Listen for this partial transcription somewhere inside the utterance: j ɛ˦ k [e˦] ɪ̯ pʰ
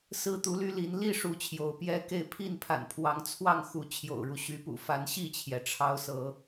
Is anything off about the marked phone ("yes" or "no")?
yes